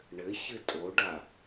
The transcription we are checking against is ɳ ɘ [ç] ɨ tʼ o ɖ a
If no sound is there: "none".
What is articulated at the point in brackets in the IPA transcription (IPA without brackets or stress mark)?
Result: ç